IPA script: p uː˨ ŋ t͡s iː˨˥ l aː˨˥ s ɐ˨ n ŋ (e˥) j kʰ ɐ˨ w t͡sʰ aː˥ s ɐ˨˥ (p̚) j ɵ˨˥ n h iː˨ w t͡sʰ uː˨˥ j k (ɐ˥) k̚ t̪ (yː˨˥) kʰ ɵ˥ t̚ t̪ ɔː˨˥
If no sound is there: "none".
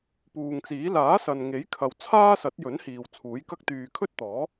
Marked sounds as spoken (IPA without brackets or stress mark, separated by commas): e˨˥, t̚, ɐ˥, yː˧